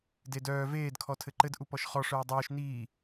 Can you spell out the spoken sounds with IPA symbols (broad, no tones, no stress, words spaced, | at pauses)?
dedœː veːd kʰɔtʰɘǃɘd ʔupɔʃχɔ ʂœːdˤœːʃ niː